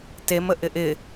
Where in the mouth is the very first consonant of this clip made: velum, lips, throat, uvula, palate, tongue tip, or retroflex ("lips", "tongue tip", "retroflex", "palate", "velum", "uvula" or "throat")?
tongue tip